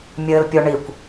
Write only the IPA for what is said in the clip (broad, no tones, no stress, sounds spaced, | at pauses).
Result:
mʲ ɘː l pʲ o ɳ i kʷ